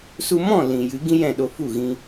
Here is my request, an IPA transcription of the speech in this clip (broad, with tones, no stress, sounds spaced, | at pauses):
s u˧ m ɔ̃˦˨ l ĩ˨ j ɨ˨˦ ɡ ĩ˦ j ɛ̃˦˨ ɗ o˧ f u˦˨ ɣ ĩ˧